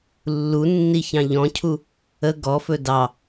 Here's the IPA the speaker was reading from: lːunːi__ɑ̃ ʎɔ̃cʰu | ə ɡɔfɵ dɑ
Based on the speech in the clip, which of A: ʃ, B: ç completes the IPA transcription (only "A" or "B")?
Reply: B